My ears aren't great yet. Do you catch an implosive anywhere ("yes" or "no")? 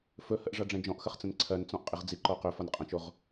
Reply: no